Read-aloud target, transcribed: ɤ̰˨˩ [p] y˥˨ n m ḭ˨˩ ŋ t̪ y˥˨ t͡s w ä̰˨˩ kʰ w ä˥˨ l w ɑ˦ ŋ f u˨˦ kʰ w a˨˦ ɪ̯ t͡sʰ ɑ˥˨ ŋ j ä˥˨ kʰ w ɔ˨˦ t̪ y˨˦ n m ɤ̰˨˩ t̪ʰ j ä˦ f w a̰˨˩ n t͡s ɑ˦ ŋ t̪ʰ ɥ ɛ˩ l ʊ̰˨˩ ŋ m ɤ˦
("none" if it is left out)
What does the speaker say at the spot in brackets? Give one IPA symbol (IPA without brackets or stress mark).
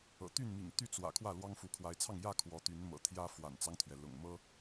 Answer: t̪